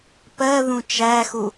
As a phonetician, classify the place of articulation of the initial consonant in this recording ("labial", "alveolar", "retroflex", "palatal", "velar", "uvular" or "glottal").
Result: labial